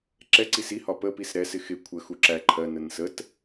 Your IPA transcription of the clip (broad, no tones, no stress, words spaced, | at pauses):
ǁɛ ǀisihɒ pəpis ɾɛsɪ xɪ kʷʰəxu ǁæ ǃʰɜnən sət